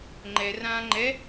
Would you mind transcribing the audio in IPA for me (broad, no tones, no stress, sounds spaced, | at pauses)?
ŋ͡ǃ ɛ r ãː ŋ͡ǃ ɛ